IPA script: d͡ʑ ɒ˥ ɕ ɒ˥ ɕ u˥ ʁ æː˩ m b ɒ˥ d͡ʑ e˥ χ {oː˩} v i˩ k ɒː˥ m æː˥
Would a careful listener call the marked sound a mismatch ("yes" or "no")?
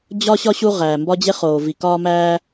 no